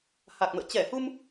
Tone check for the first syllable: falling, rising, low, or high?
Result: low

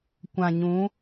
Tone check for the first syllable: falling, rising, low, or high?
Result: low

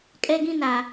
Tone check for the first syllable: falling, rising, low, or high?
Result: high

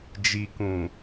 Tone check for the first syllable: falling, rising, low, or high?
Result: low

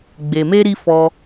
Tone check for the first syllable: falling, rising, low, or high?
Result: low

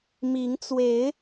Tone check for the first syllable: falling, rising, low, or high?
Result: rising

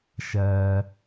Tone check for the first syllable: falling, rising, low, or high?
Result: low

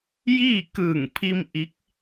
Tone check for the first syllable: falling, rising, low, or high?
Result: falling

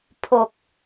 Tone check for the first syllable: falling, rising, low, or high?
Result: low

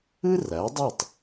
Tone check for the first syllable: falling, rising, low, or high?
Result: high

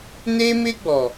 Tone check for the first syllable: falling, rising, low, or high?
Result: high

